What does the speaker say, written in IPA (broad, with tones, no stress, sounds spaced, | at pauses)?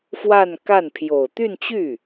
f w a˥˧ n k a˥˩ n pʰ j o˨˩ ʊ̯ t̪ y˥˧ n t͡ɕ y˥˩